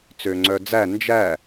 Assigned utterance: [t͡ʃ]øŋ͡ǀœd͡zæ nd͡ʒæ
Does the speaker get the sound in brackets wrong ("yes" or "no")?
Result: yes